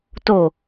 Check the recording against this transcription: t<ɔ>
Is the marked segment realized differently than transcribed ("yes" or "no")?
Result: yes